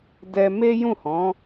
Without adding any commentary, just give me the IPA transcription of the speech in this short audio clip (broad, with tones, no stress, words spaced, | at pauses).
dɛ˧me˦jũ˦˨hɔ̃˨˦